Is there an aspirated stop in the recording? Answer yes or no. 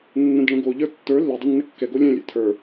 yes